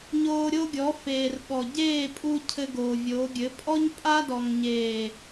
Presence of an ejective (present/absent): present